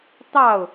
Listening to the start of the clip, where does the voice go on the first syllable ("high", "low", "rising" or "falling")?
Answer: falling